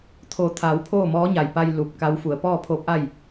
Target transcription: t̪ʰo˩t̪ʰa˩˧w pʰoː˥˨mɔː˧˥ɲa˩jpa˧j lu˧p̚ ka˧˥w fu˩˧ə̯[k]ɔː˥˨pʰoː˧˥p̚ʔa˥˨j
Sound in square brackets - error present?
yes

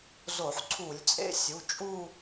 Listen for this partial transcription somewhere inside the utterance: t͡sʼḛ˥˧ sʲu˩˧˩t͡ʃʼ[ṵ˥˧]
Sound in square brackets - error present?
yes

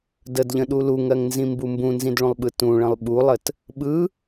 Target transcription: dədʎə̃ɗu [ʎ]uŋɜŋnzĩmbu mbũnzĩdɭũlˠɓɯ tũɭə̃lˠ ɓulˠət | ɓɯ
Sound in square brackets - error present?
yes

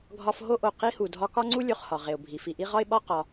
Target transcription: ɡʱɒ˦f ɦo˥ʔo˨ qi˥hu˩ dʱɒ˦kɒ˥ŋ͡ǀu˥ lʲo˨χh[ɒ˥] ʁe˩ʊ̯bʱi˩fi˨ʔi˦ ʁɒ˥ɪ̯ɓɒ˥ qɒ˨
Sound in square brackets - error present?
yes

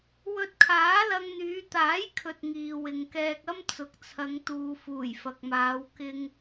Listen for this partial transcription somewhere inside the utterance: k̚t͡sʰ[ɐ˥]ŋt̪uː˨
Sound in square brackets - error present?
yes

